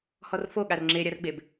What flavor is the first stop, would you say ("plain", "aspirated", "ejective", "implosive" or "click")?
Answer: implosive